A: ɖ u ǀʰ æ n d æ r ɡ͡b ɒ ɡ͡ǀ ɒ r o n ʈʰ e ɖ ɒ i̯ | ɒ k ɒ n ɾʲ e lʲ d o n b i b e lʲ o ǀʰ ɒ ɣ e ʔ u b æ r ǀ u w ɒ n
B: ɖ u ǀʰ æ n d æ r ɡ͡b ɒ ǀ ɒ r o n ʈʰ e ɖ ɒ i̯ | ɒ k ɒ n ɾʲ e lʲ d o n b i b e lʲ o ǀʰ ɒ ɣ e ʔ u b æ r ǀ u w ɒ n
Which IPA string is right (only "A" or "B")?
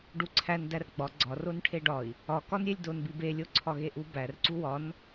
A